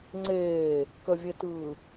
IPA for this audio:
ŋ͡ǀeː | kəvʲetɯː

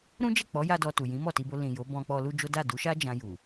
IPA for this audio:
ɾũ˦d͡ʒɛ˦˨k͡pɔ˨˦ ja˦dɔ˧ tu˨jĩ˨˦ mɔ˦˨ti˧bo˧ lĩ˨ jo˨˦bɔ̃˧ k͡pɔ˧lu˦d͡ʒo˦ da˦˨du˨˦ʃa˦ d͡ʒã˧ju˨

